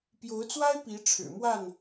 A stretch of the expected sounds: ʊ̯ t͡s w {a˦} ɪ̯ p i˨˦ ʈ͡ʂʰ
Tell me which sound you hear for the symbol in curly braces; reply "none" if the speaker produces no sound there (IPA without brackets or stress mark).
a˦